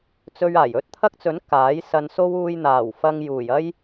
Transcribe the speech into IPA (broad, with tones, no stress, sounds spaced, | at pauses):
t͡s ɵ˧ ɥ aː˨˩ j ɵ˥ t̚ t̪ʰ ɐ˥ k̚ t͡s ɵ˨˥ n k aː˨˥ j s ɐ˧ n s o˥ w uː˧ j n̪ aː˨˩ w f ɐ˧ ŋ j uː˨˩ j ɐ˥ j